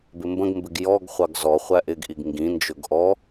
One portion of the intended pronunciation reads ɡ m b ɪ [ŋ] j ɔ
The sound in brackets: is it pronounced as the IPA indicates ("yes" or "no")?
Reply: no